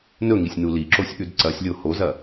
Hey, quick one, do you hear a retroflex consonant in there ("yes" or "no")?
no